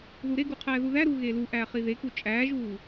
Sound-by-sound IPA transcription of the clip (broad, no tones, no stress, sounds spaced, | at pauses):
ð u ɾ e ɡ u qʰ æː ð u ð æ ɾ uː ɣ e l u ʔ æː χ i ð e k u t͡ʃʼ æː ʒ uː